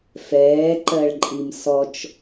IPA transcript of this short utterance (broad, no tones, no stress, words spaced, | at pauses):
fɛːǃɜɭǃʼim sɔt͡ʃ